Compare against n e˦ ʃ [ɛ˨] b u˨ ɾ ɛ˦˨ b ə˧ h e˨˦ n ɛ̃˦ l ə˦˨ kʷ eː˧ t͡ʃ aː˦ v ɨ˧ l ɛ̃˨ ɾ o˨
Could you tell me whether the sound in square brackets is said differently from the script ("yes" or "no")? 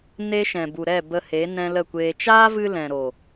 yes